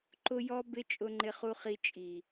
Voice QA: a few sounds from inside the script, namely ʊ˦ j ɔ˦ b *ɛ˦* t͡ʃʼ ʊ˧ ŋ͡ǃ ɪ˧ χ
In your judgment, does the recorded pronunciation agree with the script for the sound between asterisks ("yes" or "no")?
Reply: no